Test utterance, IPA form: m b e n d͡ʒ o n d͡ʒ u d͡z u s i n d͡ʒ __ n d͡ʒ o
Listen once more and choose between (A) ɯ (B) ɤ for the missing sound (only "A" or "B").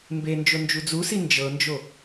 B